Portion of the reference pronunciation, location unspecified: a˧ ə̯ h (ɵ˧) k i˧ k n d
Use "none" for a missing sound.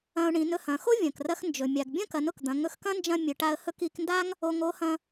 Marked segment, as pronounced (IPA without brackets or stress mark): ɵ˥